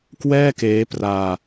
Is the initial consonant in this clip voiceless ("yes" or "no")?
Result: yes